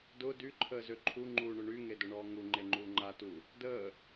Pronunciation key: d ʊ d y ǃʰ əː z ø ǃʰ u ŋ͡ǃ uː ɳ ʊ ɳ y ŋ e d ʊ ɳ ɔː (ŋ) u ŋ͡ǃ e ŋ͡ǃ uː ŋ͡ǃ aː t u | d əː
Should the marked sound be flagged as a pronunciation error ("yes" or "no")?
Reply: no